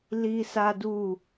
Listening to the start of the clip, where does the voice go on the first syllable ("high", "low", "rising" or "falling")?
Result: high